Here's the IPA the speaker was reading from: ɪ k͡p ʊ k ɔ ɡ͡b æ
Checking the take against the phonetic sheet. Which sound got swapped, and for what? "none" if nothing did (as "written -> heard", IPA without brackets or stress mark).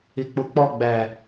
k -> k͡p